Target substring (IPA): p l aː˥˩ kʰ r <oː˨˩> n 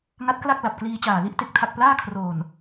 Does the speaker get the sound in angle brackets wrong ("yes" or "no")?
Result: no